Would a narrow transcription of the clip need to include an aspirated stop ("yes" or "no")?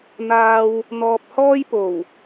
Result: no